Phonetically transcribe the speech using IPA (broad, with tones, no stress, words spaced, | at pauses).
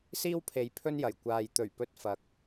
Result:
siː˥w pʰe˨j pʰɵ˥njɐ˨˩jkʷaː˨j t̪ɵ˨˩ɥpɵ˧t̚ fɐ˨k̚